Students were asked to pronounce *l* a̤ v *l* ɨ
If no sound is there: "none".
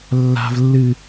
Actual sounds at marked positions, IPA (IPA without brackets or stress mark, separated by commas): lː, lː